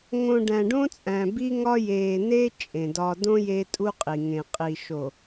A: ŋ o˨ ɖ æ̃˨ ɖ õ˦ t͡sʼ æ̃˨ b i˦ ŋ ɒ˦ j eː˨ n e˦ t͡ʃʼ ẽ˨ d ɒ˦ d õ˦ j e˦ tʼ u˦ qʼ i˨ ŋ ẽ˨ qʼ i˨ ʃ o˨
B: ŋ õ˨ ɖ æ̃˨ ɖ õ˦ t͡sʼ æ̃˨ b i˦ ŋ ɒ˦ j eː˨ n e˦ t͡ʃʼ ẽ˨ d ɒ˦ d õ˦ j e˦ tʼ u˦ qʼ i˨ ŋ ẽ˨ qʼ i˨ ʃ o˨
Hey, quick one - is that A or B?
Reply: B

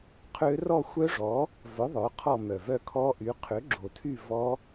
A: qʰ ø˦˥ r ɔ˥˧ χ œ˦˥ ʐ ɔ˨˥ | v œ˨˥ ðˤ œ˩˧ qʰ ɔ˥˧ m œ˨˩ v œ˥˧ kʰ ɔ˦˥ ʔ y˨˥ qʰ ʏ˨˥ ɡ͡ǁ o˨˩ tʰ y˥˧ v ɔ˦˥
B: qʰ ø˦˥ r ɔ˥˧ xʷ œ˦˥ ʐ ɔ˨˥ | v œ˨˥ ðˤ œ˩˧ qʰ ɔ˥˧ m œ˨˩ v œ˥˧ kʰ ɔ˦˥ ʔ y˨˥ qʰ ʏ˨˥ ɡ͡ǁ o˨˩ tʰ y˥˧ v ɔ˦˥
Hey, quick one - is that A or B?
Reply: B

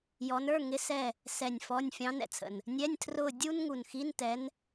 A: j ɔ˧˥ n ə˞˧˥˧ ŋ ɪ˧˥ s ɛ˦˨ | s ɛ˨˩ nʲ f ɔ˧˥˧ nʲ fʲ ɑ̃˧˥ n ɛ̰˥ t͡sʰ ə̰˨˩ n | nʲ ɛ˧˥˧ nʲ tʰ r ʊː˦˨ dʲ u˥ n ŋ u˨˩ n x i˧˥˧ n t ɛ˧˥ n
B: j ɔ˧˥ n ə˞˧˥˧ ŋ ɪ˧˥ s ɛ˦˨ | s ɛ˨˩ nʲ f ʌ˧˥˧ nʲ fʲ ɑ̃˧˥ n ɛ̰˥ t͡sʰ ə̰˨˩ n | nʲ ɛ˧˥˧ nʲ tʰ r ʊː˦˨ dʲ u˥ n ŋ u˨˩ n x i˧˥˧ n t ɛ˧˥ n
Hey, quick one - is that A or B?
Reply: A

